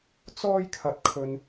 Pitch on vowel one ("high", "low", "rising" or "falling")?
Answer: high